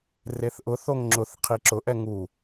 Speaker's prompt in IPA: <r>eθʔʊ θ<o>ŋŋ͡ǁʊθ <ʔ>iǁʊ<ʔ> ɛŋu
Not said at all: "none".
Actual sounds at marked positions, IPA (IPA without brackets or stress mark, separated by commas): r, o, qʰ, ʔ